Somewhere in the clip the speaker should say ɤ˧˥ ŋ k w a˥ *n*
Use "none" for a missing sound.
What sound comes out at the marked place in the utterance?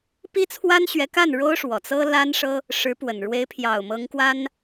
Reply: n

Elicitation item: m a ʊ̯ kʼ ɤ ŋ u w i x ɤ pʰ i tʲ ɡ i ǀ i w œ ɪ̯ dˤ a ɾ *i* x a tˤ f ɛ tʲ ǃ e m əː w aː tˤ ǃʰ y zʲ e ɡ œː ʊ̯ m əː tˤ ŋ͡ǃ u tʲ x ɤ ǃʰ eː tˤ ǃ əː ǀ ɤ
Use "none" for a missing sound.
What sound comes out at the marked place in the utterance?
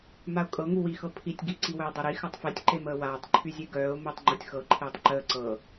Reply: i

